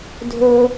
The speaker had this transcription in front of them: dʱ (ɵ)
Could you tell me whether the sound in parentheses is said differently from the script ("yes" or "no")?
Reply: no